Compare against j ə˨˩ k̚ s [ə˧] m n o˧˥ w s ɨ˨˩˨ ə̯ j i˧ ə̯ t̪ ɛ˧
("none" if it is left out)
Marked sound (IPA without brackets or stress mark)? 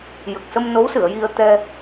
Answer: ə˧